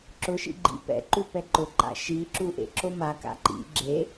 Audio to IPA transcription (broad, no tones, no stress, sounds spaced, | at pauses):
ǁ ʊ ʃ ḭ ɡ͡ǃ ḭ p ɛ̰ ǃ u p ɛ ǃ ʊ ǃ a̰ ʃ i ǁ u ʔ ḛ ǁ o m a k a̰ ǃ ḭ ɡ͡ǁ e